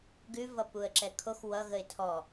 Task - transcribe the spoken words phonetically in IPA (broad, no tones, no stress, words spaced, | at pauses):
ɡʉvʌ puə̯ǁɛkʰox wʌ ɣəɪ̯tʰɔ